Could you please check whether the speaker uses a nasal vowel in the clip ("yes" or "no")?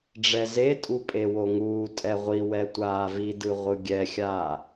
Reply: no